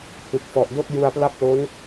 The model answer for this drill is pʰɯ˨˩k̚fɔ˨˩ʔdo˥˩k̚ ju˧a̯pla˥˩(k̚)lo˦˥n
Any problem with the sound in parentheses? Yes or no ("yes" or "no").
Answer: yes